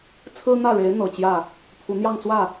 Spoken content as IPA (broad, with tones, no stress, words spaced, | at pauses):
t͡sʰɹ̩˥n̪ä˥˩ɻe˧˥ɪ̯ n̪ɤ˨˩t͡ɕjä˥˩ | pʰu˧˥ n̪jɑ˥˧ŋt͡swä˥˩